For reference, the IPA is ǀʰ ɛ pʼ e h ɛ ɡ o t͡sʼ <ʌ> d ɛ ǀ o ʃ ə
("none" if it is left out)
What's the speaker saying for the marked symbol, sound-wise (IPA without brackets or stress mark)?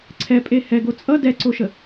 ʌ